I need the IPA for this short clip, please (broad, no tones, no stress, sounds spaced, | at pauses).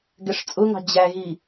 ɡ ɛ ʂ t͡sʼ ʊ ŋ ɑ̤ d͡ʑ æ ɣ i